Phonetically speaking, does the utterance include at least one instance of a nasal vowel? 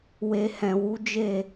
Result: yes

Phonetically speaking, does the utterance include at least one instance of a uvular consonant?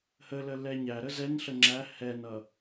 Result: no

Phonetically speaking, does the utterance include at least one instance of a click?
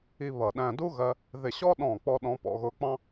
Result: no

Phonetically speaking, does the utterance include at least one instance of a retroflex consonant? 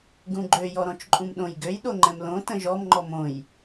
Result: no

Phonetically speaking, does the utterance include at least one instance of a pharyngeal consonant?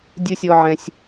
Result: yes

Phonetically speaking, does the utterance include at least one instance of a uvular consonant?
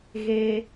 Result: no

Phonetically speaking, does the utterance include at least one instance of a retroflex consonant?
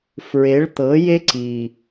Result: yes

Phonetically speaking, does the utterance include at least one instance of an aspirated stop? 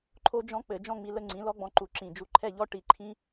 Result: yes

